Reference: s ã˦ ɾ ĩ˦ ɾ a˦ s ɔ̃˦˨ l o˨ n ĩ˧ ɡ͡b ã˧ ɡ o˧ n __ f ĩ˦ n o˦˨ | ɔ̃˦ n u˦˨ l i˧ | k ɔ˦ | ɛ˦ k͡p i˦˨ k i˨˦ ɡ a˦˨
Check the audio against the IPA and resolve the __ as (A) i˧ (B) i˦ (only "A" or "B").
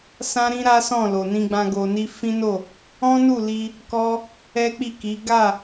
B